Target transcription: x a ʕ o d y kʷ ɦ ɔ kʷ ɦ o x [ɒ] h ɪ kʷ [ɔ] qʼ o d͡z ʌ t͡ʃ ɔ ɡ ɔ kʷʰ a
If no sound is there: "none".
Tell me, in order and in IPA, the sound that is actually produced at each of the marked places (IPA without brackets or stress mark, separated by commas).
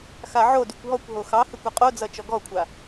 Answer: ɑ, ʌ